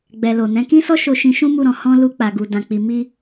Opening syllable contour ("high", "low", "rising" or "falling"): low